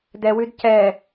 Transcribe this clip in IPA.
d ɛ w ʉ d c ɛ

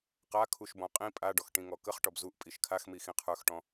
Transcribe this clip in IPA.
q a kʰ u ʃ b ɔ̃ qʼ ĩ pʼ a ɖ ɔ x ʈ ĩ ŋ ɔ k ə χ ʈ ɔ b z u ʔ pʼ i ʃ kʰ a x m i x ĩ qʰ ə˞ x ʈ ɔ̃

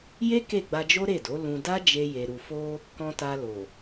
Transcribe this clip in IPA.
j e˦ k e˦˨ ɡ͡b a˧ d͡ʒ o˦ ɾ e˦˨ d o˨˦ l ũ˧ d a˦ d͡ʒ e˧ j e˨ ɾ u˨ f o˧ | k ɔ̃˧ t a˧ l o˨

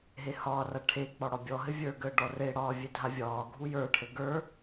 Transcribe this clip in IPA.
ɦ e h ɒː r a ʈʰ e k͡p ɒ ɽ ɒ bʲ ɔ ɦ ɘ vʲ ə˞ ɡ əː ɖ ɔ r e ɽ ɒː vʲ e dʱ a vʲ ɒː ɡʱ u j ə˞ ʈʰ ɘ ɡ ə˞

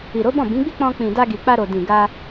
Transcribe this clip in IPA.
i˨ ɾ o˨˦ b ɔ̃˦˨ b ĩ˨˦ ɡ͡b i˦ k͡p ɔ̃˧ k͡p ĩ˨ d a˧ ɡ i˨ k͡p a˧ ɾ o˨ d ĩ˨ ɡ a˧

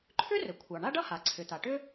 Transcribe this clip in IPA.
ǃʰ ʏ˥ r ɘ˩ kʷʰ ɑ˩ ɳ a˥ ɖ ʌ˥ h a˩ ǀʰ ʏ˩ t̪ a˩ ʈ ʏ˥

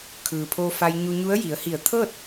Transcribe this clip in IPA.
kʰ ɯː˩ pʰ oː˧ f a˧ j ɲ u˧ ɲ u˧˥ ə̯ j i˩˧ ə̯ h i˧˩ ə̯ t̪ʰ ɤː˥˨ t̚

